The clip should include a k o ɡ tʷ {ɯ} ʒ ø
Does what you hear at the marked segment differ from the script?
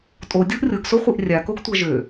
yes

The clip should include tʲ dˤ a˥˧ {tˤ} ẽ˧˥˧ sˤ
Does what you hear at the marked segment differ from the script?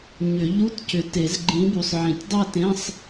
yes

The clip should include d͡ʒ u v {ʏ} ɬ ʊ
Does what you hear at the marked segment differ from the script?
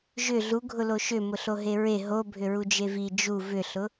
no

